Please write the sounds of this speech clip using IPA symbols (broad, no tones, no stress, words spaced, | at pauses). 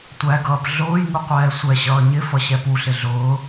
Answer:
tʷæɡʌːp ɮʊːjŋu qʷɛːsʷɛɕʌː ɲɪfʌ ɕɛpuɬɪ ɮʊː